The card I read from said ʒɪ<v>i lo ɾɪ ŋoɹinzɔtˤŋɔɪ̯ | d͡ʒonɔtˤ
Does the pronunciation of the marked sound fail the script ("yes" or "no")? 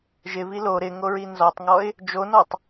no